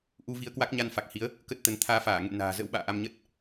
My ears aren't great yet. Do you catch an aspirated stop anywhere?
yes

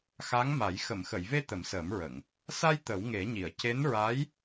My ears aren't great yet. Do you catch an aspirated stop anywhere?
no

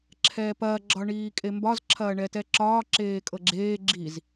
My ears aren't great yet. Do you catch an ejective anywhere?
yes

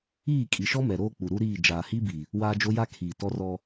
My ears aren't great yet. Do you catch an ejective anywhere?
yes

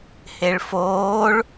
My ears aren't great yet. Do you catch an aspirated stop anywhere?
no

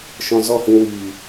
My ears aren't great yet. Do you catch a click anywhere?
no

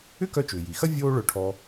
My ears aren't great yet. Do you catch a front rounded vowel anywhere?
yes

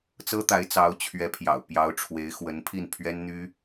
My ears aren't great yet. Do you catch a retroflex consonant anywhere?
yes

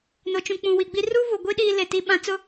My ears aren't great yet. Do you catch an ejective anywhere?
no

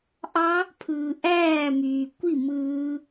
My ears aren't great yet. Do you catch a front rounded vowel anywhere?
yes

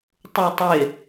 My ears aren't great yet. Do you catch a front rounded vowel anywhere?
no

